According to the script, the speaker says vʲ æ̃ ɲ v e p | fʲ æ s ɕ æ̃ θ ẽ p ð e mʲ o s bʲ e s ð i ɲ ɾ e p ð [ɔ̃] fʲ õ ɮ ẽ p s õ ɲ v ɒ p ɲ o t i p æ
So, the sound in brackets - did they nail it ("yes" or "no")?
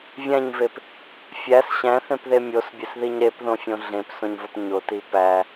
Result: no